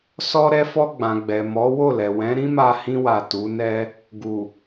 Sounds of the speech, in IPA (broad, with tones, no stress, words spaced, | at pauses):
sɔ˦ ɾɛ˧fɔ˧ɡ͡bã˨ ɡ͡bɛ˨mɔ˨˦wo˦˨lɛ˨ wɛ̃˨˦ɾĩ˦ma˧ hĩ˧wa˨ tu˨˦nɛ˦ | ɡu˨